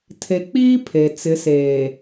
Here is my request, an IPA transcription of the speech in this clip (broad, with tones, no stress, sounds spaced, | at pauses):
tʰ e˨ k͡p iː˦ pʰ e˨ t͡s ɪ˨˦ s eː˨